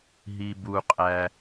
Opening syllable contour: low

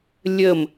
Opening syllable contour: falling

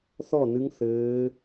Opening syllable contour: falling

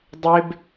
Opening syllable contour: high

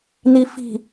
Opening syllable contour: low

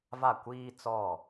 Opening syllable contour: falling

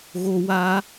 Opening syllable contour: high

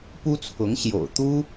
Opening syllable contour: high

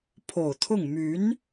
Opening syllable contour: low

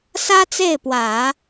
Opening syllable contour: high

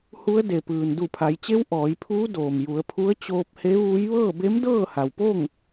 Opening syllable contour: rising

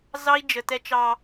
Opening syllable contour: high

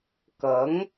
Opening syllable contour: rising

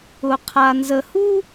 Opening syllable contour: low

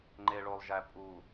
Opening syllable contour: low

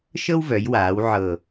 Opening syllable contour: high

